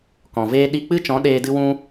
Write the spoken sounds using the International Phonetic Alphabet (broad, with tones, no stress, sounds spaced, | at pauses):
k ɔ̃˨ v eː˦ ɗ i˧ k͡p ɨ˦ t͡ʃ ɔ̃˨˦ ɗ eː˧ d ɨ˧ w ũ˧